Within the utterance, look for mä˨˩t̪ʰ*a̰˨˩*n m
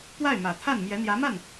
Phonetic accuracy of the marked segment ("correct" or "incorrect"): incorrect